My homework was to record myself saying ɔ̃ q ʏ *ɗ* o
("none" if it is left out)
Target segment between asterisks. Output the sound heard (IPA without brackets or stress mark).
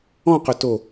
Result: t